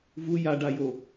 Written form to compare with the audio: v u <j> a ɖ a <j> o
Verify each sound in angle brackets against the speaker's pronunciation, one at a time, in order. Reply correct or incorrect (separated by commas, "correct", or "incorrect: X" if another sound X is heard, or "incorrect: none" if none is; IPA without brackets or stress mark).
correct, correct